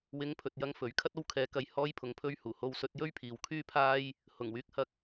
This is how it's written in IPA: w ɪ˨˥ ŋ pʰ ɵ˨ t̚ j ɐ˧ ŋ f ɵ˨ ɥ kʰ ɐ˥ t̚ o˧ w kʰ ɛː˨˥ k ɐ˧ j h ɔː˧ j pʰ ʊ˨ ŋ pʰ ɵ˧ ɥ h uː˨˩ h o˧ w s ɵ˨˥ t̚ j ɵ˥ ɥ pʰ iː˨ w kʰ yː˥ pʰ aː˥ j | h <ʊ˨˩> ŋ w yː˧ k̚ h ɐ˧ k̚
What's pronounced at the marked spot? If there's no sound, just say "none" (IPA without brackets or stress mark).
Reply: ʊ˨˩